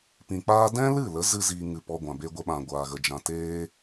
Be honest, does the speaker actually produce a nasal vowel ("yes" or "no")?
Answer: yes